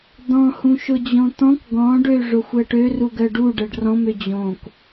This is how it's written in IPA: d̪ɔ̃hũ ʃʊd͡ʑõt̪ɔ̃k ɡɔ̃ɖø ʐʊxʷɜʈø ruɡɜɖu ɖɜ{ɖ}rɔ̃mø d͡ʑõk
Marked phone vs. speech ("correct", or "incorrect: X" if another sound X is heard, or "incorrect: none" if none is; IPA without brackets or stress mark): correct